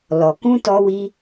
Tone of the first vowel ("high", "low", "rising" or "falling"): low